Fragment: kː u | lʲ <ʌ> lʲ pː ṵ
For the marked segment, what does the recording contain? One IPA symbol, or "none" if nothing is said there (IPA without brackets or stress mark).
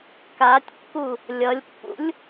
ʌ